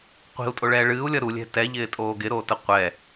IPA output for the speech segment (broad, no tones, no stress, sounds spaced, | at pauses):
qʷ i̤ u̯ tʼ o ɭ ɛː ɭ ɨː u̯ lʲ ʌ ɾ u lʲ ɛ̤ t ɛ ʎ ɪː tʼ oː ɡ ɪ ɾ oː t ə qʷ ɛ